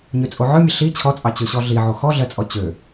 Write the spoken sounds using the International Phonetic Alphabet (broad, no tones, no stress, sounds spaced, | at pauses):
ɲ ø t͡sʼ o ʕ œ mʲ ə ɬ i t͡ɕʰ ɔ t͡sʼ ɑ t͡ɕ ø ɕ ɔ ɮ i ʕ o x ɔ ɮ ɜ t͡sʼ ɔ t͡ɕ ø